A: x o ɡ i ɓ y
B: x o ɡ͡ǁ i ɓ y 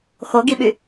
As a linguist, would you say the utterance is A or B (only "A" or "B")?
A